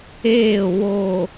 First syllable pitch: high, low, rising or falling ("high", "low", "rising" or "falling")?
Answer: falling